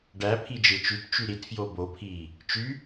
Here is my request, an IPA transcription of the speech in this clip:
ɖ æ pʰ i d͡ʒ ɯ t͡ʃ y t t͡ʃ y ɾ i t f j o b o pʰ iː | t͡ʃ y

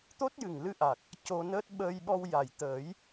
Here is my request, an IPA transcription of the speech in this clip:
t̪ o˦˥ t̚ j ɨ˨˩ ŋ l ɨ˧ ʔ a˨˩ k̚ | c o˧ n əː˦˥ t̚ ɓ əː˧ j ɓ ɔ˧ w j a˨˩ j t̪ əː˨˩˦ j

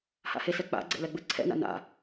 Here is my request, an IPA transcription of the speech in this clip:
h a̰ h e s ɛ k͡p a̰ ɡ͡ǀ ɛ̰ l ɛ ɡ͡b ɯ ǀʰ ɛ̰ n a̰ n a̰

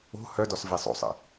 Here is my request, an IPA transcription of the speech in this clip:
o̤ h œ d ɔ s v e sˤ o̰ sˤ ə̰

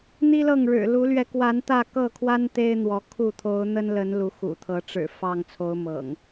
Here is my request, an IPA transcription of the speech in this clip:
n̪ i˦ l ɤ˥˨ ŋ ɻ ɻ̩˨˩ l u˨˦ l ɥ ɛ˨˦ k w a˨˦ n t̪ ä˥˨ k ɤ˥˨ kʰ w a˦ n t̪ e˦ ɪ̯ n̪ w ɔ˨˦ kʰ u˥˨ t̪ʰ o˨˦ ʊ̯ n̪ ə˦ n l ə˨˦ n l u˨˦ x ṵ˨˩ t̪ʰ ɤ˨˦ ʈ͡ʂ ɻ̩˨˩ f ɑ˥˨ ŋ t͡sʰ o˨˦ ʊ̯ m ɤ̰˨˩ ŋ

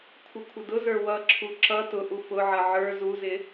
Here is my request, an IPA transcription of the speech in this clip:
kʷʰ ɪ kʷʰ ə d ʊ z ə˞ w ʌ ǁʰ u ǁ ʌ t ʊ ʔ u f ʊ ʕ ʌ ʕ ə˞ z u z ɪ

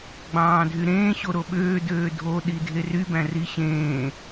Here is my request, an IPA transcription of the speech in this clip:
ɡ͡b ɑ̃ː dʱ y ɾ ẽː ɕ o ɾ o ɓ øː d øː dʱ o ɗ i dʱ e r y b æ̃ r i ɕ ẽː

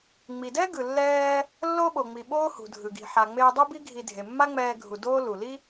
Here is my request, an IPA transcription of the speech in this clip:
ŋ͡m i˩ d ɛ˥ ɡ ɯ˩ lː ɛː˧ | lː o˥ ɓ o˩ ŋ͡m i˩ ɓ oː˥ h ṳ˩ dʱ ɯ˩ ɡ i̤˩ ħ a˩ ŋ͡m eː˧ dˤ u˥ b i˥ ɡʱ i˧ dʱ e˩ mː a˥ ŋ͡m ɛː˧ ɡʱ u˩ d oː˥ l u˩ l i˥

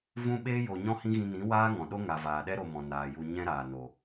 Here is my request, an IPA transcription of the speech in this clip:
v ũ˦ ɓ eː˦ j o˨ ɲ ɔ̃˦ h ĩ˦ ɣ ĩ˧ n ĩ˨˦ w aː˦ ŋ ɔ̃˨ ɗ o˦ ŋ a˨ v aː˨ ɗ ɛ˦ ɾ o˧ m ɔ̃˨ n aː˨ j u˧ ɲ ɛ̃˦ ɾ aː˨ n o˨

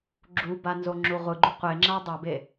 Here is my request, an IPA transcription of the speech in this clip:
ɡ͡ǁ u b a n z o ŋ͡ǁ u ʁʷ ɯ ɡ͡ǃ u qʷ e ŋ͡ǁ a dˤ a b e

